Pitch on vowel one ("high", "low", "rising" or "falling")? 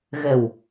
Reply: low